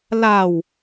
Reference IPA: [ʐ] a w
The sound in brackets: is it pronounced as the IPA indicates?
no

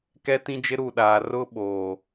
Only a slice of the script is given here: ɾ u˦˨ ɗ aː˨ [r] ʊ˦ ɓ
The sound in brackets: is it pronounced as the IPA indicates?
yes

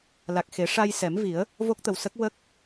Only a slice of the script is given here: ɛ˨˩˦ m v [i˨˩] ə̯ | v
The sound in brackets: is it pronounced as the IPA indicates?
no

